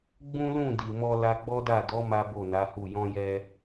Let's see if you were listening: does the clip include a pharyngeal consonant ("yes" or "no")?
no